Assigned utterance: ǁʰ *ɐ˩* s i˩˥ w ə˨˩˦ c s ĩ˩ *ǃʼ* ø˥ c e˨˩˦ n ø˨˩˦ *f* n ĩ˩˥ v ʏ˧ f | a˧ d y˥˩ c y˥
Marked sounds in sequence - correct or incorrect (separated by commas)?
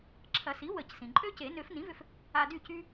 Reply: incorrect, correct, correct